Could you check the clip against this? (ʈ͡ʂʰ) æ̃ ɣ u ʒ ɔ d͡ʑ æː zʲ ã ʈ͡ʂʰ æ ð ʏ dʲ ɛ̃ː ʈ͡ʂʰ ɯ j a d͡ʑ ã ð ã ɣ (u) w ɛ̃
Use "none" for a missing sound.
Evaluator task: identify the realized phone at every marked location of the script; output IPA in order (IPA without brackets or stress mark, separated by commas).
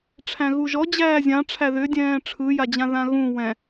ʈ͡ʂʰ, ũ